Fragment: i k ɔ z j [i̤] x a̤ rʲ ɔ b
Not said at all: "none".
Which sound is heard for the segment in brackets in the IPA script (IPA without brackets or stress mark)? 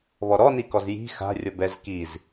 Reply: i̤